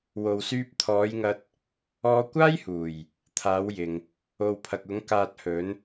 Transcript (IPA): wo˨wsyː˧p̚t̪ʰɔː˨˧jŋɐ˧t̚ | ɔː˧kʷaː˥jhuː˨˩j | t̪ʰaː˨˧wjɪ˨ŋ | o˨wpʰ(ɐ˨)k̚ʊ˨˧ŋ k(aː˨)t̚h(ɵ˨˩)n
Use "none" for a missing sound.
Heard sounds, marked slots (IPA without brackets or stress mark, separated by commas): ɐ˨, aː˨, ɵ˨˧